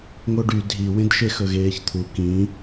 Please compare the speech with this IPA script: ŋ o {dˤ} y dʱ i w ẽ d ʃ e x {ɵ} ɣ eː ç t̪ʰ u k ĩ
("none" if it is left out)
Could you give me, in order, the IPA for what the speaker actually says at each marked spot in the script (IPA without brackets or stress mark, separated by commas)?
ɖ, ɵ